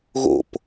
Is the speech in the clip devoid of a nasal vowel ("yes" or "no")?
yes